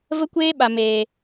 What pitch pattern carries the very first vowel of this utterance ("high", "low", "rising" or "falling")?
high